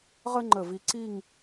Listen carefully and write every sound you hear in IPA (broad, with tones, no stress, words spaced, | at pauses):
ʁə˥ŋ͡ǃə˧˩vi˧ ǀi˥˧ŋ